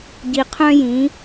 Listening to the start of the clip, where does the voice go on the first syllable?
low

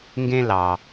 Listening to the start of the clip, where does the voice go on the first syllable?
high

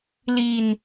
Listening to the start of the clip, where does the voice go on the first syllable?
low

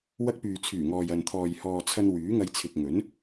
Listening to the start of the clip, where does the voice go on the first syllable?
high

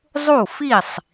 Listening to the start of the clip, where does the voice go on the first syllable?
falling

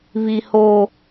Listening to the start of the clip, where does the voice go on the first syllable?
high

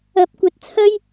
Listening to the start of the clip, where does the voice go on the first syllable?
rising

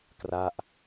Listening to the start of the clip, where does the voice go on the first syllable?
falling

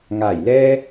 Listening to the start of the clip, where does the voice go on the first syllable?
low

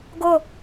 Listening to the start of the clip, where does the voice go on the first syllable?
falling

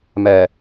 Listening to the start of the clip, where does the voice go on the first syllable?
low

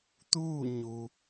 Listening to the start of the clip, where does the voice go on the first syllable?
falling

